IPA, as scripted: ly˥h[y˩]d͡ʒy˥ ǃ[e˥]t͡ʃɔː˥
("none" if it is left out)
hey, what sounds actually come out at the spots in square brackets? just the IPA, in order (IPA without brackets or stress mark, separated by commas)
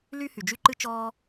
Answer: y˩, ɨ˥